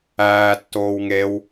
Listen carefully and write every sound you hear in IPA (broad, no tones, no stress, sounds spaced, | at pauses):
æː tː oː w ŋ e w